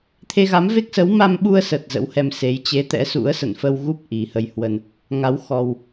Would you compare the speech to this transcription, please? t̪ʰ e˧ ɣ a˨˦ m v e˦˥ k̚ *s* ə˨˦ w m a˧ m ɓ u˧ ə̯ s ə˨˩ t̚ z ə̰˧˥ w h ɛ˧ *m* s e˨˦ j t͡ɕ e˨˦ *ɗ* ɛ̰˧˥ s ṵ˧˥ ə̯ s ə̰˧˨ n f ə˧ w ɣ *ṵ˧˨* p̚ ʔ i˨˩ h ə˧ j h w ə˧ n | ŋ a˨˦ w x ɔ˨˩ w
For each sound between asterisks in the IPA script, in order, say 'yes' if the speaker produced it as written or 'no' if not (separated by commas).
yes, yes, no, no